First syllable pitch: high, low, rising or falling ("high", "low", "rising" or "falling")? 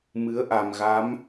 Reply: rising